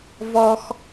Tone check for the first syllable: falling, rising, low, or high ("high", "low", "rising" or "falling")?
high